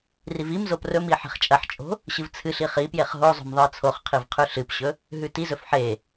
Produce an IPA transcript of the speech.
r i v i m z o p r ɵ m i ħ e̤ χ t͡ʃʼ ɐ ħ t͡ʃʼ o̤ | ɕ ɨ v t͡sʰ ɨ ɬ i χ i p j e χ ɦ o zˤ o̤ m ðˤ ɨ ə̯ t͡sʰ o χ qʰ i v qʰ ʉ ɬ ɨ p ɕ ɵ | ɦ ʉ t i z ɵ f ħ e

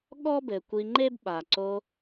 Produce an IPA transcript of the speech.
ɠ ɔ˦ b ɘ˨ kʷ i˧ ŋ͡ǃ e˦ b ɓ a˨ ǀ o˧

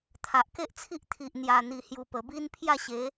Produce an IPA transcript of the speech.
t̪ʰ a˨ ʔ k e˦ ʔ t͡sʰ i˦ ʔ t̪ʰ i˨ ʔ n̪ j a˨˩ n̪ i˨˩ h j u˨˩ p ə˨˩ b i˦ n pʰ j a˥˧ ɕ e˨˦

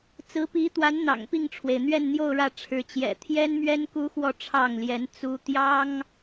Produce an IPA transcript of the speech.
t͡s ɹ̩˧˥ p i˧˥ t̪ w a˧˥ n n̪ ɑ̰˨˩ ŋ p i˥˩ ŋ ʈ͡ʂʰ w e˩ ɪ̯ n̪ ɥ ɛ˥˧ n n̪ j o˥˧ ʊ̯ ɻ ä˥˩ ʈ͡ʂʰ ɻ̩˧˥ t͡ɕ j ɛ̰˨˩ t̪ʰ j ɛ˥ n m ɥ ɛ˥ n k u˥ x w ɔ˥˧ ʈ͡ʂʰ ɑ˥˩ ŋ l j ɛ˧˥ n t͡s u˥ t̪ j ɑ˥ ŋ

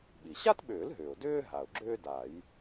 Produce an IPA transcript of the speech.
ɓ i˩ ɕ a˥ t ɓ ʏː˨˩˦ l ɦ ʏː˩ ʊ̯ d ʏː˥ ɦ a˩ ʊ̯ ɡ͡ǁ ʏː˥ d a˨˩˦ j

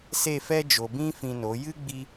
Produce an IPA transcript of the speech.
s e˦˨ f ɛ˦ d͡ʒ o˨ b ĩ˦ f ĩ˧ n o˨˦ j ɨ˦ ɡ͡b i˧

